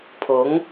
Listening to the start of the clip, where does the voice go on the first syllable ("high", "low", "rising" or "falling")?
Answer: rising